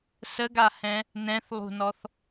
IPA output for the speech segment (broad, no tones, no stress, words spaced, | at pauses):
səɡahɛ̃ | nɛ̃θlˠṳnɔθ